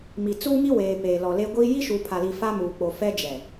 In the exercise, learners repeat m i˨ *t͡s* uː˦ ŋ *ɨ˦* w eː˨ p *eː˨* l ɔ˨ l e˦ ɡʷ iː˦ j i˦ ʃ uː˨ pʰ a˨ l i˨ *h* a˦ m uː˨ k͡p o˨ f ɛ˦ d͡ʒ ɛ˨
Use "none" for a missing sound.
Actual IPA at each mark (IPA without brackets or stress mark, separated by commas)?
t͡s, i˦, eː˨, f